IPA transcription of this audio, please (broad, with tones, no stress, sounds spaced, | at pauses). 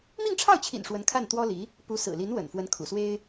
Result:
m i˥˧ ŋ ʈ͡ʂʰ ɑ˥˩ ʊ̯ t͡ɕʰ ḭ˨˩ n ʂ w ə˧˥ n kʰ a˥˩ n t̪ w ɔ˥ l i˧˥ | p u˧˥ s ɹ̩˨˩ l i˧˥ n w ə̰˨˩ n f w ə˧˥ n kʰ ṵ˨˩ s w e˥ ɪ̯